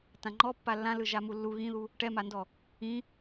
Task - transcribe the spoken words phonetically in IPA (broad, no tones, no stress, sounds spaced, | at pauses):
t ã ŋ͡ǃ ɔ pː a lː ã l ɯ ʒ a m u lː u ɣ ĩ ð u | ʈ ɛ m a n d ɔ | ĩ